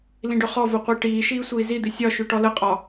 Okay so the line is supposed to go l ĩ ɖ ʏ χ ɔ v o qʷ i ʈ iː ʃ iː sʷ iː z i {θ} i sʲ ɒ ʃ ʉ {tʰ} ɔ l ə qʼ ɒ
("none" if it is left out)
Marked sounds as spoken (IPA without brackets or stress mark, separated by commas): d̪, ʈ